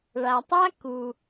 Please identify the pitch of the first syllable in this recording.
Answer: low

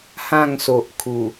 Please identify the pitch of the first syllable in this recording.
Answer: falling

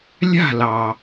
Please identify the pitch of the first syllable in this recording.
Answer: falling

